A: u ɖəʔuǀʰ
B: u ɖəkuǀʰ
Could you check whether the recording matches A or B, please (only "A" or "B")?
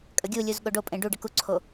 B